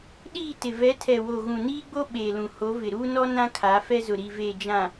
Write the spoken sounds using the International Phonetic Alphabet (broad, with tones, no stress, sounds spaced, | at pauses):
ɗ iː˦˨ t ɪ˨ v ɛ˨˦ tʰ ɛ˨ w o˨ ɣ ũ˨ n iː˦ ɡ͡b o˦ ɓ eː˨ l ũ˨ h o˨˦ v ɪ˨ ɾ uː˦ n ɔ˦ n ã˦ kʰ a˨˦ f ɛ˦ z ʊ˨ ɾ i˨ v eː˨ d͡ʒ ã˨